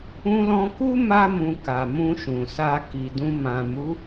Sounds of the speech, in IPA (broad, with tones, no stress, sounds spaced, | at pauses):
ũ˧ l ɔ̃˧ k u˦ m a˧ m ũ˨ k a˨ m ũ˧ ʃ ũ˨ s a˧ k i˨ d ũ˧ m ã˨ m u˨˦